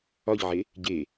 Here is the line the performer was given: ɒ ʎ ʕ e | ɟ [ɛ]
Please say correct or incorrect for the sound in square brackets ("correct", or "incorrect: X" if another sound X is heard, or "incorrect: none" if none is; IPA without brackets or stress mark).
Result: incorrect: e